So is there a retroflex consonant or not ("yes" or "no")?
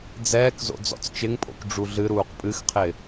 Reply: yes